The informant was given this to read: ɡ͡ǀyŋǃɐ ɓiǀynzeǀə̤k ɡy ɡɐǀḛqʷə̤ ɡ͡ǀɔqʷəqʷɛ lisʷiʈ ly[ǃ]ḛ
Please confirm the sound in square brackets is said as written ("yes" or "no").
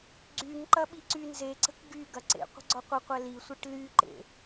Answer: yes